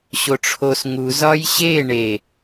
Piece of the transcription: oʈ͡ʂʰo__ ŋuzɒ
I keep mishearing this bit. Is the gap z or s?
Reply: s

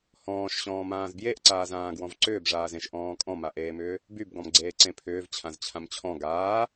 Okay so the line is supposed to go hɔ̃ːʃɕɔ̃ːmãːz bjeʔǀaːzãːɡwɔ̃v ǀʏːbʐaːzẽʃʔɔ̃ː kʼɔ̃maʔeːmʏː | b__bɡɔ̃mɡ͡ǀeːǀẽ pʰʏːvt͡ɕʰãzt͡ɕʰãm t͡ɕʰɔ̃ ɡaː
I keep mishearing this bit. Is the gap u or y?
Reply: y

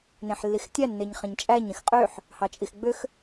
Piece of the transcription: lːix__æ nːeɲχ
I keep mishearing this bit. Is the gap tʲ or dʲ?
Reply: tʲ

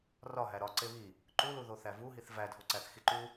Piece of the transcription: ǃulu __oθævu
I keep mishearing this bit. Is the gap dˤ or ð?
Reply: ð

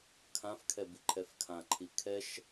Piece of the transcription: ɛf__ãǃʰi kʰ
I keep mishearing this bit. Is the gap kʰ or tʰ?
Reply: kʰ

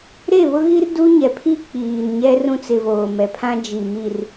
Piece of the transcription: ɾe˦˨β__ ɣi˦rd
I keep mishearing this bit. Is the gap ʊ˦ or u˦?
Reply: ʊ˦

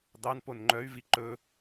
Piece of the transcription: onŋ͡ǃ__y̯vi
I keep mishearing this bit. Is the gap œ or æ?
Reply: œ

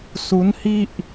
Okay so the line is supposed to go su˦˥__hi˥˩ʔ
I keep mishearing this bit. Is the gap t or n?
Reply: n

